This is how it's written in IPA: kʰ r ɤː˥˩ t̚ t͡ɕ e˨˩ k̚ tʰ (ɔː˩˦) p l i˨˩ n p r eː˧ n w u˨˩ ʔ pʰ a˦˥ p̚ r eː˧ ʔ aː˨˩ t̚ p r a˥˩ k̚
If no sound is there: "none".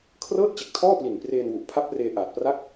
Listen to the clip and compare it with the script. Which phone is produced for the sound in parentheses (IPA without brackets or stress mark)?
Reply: ɔː˥˩